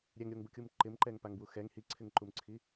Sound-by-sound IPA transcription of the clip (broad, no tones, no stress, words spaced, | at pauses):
ɾʲɛŋɾʲoŋbukʲum ǃɪmǃɛŋpaŋbwu xɛŋ hiǀʰɪŋǃumǀʰi